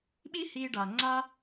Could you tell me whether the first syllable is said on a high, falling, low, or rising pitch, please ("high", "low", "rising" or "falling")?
high